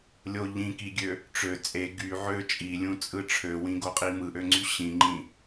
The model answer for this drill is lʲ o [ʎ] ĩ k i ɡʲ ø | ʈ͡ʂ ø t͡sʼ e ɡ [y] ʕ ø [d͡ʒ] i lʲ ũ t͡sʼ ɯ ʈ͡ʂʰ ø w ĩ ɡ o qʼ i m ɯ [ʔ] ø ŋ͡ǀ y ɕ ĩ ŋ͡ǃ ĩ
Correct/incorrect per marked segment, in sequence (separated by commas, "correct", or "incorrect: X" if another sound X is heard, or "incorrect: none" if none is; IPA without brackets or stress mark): correct, correct, incorrect: t͡ʃʼ, correct